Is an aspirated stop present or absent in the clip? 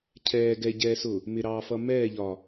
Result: present